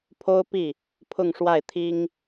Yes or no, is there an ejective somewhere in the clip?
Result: no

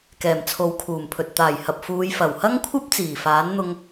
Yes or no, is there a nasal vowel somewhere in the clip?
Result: no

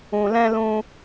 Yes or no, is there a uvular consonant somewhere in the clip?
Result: no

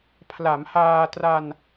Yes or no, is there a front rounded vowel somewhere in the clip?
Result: no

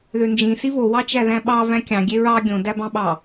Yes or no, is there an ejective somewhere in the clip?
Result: no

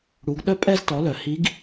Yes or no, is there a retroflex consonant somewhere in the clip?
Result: yes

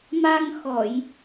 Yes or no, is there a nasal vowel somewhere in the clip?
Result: no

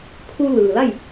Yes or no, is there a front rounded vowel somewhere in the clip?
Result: no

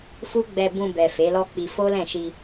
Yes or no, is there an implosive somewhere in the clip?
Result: no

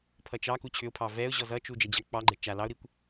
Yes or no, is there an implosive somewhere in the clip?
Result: no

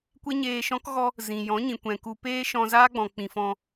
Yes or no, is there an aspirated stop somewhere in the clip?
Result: no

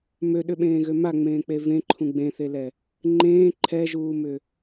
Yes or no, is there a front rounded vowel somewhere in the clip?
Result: yes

